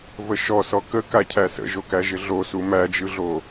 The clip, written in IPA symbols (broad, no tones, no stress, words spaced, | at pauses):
vəʃɔ sɔkəkacʰæ sə̰ʒokæʒɪ ɮosu mæd͡ʒɯɮo